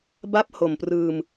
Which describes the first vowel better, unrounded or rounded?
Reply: unrounded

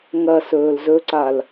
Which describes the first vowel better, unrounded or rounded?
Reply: unrounded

